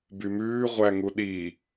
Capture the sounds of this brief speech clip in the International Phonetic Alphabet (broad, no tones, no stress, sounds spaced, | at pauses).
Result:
b y m ʉː ʁʷ æ ŋ u ɗ i